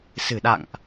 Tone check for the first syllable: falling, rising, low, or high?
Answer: low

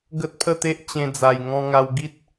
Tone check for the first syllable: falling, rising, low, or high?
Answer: high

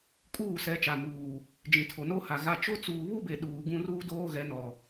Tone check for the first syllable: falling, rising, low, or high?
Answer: falling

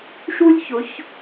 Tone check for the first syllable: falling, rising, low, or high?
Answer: high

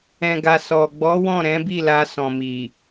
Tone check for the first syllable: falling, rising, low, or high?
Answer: low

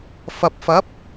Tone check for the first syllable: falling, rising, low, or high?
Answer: low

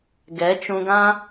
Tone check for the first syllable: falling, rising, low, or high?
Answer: rising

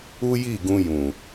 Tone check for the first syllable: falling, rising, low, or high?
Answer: high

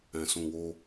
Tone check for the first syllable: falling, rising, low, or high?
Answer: low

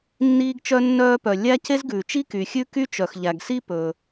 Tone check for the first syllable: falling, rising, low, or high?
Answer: high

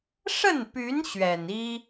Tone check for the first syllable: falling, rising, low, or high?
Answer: falling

